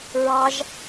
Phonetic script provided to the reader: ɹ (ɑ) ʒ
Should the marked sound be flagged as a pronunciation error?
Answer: no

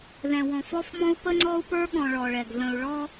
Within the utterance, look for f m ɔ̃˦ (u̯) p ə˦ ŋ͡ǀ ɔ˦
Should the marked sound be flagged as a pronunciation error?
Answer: no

